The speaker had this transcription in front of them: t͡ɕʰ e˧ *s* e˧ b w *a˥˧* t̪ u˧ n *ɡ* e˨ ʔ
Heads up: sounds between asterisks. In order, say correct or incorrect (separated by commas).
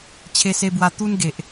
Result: correct, incorrect, correct